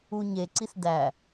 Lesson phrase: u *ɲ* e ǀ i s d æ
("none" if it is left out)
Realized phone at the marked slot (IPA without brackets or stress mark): ɲ